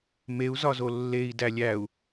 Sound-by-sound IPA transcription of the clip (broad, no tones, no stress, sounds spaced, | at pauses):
m e u̯ z ɒ z o lː e i̯ d æ lʲ æ u̯